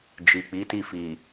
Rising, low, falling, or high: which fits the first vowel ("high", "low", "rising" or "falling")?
low